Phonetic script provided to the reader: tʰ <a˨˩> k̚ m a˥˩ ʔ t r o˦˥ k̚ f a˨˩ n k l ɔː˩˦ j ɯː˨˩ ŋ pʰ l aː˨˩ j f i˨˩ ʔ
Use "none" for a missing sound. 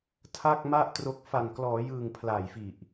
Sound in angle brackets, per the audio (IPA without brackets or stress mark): a˥˩